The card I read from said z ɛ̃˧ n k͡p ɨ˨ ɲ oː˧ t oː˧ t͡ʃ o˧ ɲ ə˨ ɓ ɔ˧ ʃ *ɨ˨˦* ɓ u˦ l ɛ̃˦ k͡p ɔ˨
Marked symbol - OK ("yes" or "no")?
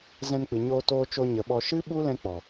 no